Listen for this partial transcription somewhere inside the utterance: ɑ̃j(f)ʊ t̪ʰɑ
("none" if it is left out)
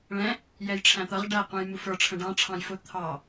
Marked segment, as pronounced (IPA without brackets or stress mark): f